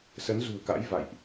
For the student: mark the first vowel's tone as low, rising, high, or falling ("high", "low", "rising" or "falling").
rising